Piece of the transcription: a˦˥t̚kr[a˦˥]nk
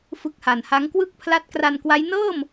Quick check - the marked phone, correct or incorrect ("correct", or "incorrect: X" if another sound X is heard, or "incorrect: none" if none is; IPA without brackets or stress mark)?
incorrect: a˧